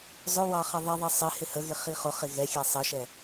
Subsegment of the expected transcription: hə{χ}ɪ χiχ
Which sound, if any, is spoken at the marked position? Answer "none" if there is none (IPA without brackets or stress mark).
ɣ